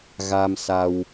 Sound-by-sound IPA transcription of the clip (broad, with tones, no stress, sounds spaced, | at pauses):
ɣ a˧ m s a˧ w